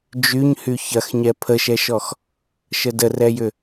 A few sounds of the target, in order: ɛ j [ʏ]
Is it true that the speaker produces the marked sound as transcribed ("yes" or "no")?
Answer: yes